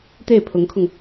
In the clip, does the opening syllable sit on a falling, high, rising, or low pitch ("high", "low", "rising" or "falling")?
falling